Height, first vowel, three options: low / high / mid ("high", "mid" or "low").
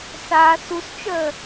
low